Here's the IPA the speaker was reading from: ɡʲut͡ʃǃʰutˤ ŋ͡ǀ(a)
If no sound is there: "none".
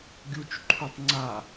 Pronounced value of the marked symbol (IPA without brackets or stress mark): a